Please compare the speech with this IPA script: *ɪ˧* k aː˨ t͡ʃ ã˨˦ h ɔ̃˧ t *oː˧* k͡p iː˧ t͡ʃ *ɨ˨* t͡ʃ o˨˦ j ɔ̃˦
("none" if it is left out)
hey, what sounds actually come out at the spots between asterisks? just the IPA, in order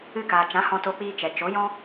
ɨ˧, o˧, ɛ˨

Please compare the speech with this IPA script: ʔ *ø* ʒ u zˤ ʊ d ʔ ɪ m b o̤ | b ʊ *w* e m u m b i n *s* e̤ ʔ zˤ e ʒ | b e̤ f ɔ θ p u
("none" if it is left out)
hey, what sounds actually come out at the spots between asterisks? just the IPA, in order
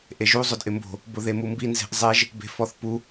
e, ð, z

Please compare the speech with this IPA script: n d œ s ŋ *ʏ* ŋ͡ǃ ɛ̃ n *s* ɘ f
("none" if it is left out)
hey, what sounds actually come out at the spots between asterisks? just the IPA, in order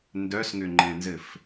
ʏ, z

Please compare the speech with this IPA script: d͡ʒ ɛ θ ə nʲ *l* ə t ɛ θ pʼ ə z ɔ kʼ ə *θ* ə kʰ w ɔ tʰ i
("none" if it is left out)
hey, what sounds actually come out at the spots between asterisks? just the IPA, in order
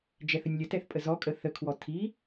lʲ, θ

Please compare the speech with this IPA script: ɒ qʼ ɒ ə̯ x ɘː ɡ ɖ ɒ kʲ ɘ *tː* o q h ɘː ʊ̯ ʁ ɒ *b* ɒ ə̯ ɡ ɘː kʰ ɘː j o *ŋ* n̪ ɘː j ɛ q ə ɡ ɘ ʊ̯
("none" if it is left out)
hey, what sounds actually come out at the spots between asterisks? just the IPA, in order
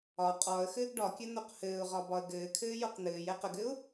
n̪, b, q

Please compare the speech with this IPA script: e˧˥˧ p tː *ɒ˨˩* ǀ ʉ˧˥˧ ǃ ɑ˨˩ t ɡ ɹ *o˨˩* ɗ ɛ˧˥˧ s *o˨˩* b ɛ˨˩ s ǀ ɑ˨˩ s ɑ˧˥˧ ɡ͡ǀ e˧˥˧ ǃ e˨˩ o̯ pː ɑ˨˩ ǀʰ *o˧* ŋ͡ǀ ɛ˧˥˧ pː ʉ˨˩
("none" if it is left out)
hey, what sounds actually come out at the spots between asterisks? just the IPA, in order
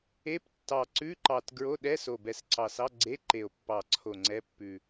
ɑ˨˩, o˧˥˧, o˨˩, o˨˩

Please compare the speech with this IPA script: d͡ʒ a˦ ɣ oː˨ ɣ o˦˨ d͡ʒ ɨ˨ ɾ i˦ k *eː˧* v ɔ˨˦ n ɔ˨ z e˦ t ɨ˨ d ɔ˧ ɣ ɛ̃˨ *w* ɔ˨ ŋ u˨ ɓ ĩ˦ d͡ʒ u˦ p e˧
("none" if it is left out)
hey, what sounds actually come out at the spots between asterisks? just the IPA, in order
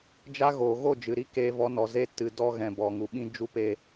eː˧, b

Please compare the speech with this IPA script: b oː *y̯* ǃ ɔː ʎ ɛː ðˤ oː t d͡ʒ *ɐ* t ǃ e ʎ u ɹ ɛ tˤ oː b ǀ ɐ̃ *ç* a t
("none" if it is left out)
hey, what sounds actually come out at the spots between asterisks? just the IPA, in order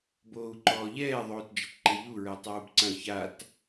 u̯, ɐ, ç

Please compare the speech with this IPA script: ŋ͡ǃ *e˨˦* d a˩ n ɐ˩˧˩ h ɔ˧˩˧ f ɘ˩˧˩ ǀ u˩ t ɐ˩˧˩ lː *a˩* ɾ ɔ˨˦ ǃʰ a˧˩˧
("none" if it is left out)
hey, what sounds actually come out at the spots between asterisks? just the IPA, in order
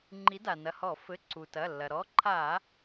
i˨˦, ɐ˩

